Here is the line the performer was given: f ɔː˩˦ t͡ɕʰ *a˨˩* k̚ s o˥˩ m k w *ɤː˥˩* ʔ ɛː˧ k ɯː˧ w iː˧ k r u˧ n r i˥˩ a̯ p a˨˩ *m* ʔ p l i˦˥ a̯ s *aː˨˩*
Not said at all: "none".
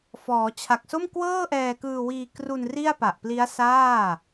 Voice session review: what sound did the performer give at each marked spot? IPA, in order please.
a˨˩, ɤː˥˩, none, aː˥˩

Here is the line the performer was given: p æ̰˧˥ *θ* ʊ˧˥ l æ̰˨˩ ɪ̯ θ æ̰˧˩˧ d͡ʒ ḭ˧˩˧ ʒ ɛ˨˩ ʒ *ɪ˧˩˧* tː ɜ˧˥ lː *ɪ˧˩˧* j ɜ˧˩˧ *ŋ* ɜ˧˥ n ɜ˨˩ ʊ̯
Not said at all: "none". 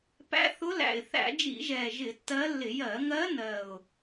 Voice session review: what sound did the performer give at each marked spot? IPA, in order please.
θ, ɪ˧˩˧, ɪ˧˩˧, ŋ

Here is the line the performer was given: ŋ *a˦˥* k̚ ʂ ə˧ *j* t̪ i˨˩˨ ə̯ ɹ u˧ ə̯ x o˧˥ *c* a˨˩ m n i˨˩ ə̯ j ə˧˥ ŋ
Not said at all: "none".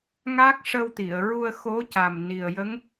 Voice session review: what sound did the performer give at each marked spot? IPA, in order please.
a˦˥, w, c

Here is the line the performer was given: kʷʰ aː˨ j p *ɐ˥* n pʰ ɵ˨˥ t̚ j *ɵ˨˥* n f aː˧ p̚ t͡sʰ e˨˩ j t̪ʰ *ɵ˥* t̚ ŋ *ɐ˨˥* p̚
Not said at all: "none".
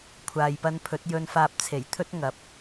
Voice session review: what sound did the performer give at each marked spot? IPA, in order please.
ɐ˧, ɵ˧, ɵ˥, ɐ˨˥

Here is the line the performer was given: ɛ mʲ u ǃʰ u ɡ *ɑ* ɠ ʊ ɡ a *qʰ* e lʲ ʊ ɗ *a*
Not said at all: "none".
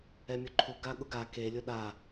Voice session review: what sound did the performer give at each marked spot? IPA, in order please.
a, k, a

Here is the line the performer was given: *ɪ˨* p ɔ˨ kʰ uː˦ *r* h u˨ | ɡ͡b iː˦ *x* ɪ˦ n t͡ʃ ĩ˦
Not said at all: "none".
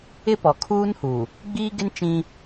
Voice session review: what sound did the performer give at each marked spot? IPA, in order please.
ɪ˦, n, ɡ

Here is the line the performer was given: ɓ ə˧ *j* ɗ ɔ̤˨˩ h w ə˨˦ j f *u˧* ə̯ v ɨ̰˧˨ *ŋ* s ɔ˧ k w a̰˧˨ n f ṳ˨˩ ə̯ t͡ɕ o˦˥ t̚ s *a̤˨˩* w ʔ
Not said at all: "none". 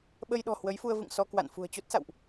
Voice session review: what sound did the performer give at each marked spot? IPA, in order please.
j, u˧, ŋ, a̰˧˨

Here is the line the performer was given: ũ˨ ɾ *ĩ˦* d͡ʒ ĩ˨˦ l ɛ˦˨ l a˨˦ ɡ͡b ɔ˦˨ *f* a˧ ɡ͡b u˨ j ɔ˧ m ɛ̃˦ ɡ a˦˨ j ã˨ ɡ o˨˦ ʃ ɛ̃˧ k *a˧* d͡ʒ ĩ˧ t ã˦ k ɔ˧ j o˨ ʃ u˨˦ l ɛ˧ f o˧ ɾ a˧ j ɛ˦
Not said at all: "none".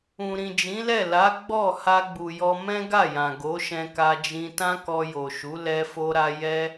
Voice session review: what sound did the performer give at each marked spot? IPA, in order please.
ĩ˨, h, a˧

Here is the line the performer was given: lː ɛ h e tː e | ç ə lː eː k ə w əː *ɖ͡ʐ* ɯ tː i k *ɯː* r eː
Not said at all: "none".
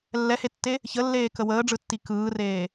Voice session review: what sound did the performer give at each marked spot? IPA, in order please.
ɖ͡ʐ, ɯː

